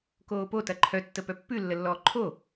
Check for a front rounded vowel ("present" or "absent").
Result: present